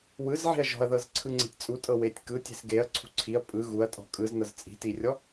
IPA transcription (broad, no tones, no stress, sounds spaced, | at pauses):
w ɯ z ʕ i̤ ɐ̯ ʒ ɔ̤ ɐ̯ ð ɤ z ǀʰ ɯ ŋ͡ǀ e̤ tʲ t͡sʼ u tʼ ɤ w e tʲ k ɯ tʲ e̤ s ɡ e ɐ̯ ǀʰ ṳ ǀʰ i ɐ̯ pʼ ɯ ɣ u ɐ̯ tʼ ɔ̤ kʼ ɯ z n ɤ z t͡sʼ i̤ t i rʲ ɔ